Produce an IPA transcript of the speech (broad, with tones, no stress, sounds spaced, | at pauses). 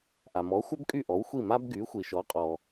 ʔ a˩ m ɔ˩˥ xʷ œ˥ b kʼ y˥˩ ʔ ɔ˩˥ w xʷ i˥˩ m a˥ b ɡ y˩˥ xʷ i˩ ʃ ɔ˩˥ qʼ ɔ˩